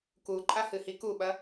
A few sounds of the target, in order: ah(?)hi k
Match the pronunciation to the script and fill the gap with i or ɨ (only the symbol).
ɨ